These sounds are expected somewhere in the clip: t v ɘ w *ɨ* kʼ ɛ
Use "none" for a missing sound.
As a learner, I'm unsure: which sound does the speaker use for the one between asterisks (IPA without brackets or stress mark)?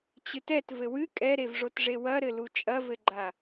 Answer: ɨ